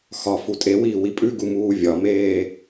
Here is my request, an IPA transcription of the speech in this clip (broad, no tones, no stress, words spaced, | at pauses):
xɒ futʼewiː wipʼʉɡu muːvʲɒmeː